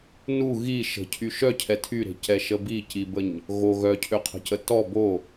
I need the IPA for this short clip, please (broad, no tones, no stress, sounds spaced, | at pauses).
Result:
n u ɣ i ʃ ə̤ cʰ y ʃ œ cʰ ɛ tʰ y ɾ e̤ c ɛ ʃ ə b i c i b ə ɲ | ɣ o ɣ œ cʰ ø qʰ ə̤ c ə t ɔ b o